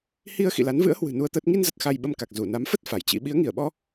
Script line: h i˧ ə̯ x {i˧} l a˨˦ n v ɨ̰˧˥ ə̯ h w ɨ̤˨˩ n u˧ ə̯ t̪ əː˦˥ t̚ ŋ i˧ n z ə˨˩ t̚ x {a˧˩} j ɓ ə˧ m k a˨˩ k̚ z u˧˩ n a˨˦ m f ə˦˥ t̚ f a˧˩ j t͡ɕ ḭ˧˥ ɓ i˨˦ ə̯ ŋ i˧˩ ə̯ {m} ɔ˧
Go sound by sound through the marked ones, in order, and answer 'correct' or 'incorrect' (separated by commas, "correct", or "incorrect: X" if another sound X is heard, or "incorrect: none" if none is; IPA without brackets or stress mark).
incorrect: ḭ˧˨, incorrect: a˧, incorrect: ɓ